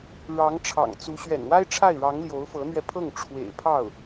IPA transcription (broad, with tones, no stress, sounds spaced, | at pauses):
ɻ ɑ˧˥ ŋ ʈ͡ʂʰ ɑ̰˨˩ ŋ t͡s u˧˥ ɕ ɥ ɛ̰˨˩ n w a˥ ɪ̯ ʈ͡ʂʰ a˥˩ ɪ̯ ɻ ɑ˧˥ ŋ l j o˧˥ ʊ̯ f ɤ˧˥ n̪ ɥ ɛ˧ pʰ ɤ˥˩ ŋ ʈ͡ʂʰ w ḛ˨˩ ɪ̯ pʰ ɑ˥˩ ʊ̯